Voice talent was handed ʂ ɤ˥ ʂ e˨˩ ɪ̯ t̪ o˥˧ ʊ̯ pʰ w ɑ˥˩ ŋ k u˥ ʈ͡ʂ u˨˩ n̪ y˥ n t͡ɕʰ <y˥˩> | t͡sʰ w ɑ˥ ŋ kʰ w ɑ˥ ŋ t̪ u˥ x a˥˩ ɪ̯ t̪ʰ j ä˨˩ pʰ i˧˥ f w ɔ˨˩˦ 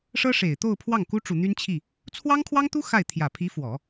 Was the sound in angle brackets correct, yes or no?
no